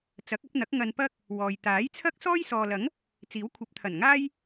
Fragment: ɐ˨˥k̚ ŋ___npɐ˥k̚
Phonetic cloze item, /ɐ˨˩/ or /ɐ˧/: ɐ˧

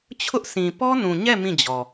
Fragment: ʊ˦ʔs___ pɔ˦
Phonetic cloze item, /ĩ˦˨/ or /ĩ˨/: ĩ˨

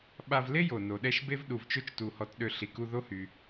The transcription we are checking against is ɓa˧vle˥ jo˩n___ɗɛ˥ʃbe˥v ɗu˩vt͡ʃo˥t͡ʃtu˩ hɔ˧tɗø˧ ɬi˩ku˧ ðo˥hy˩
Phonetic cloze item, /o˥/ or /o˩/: o˩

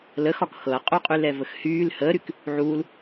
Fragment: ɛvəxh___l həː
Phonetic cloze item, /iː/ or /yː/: yː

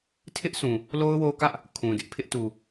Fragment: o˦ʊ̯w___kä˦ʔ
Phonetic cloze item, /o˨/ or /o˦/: o˦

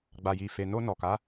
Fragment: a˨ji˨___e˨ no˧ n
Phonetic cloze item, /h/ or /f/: f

